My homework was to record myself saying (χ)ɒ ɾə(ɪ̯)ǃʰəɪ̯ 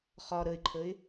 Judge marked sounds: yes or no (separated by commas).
yes, yes